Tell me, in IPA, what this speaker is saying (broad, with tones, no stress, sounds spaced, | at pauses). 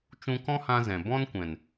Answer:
t͡ʃ ũ˦ k ɔ̃˦ h ã˧ z ɛ̃˨ b ɔ̃˦ n kʷ ɛ̃˨ n